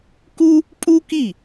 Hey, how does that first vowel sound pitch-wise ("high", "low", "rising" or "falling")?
high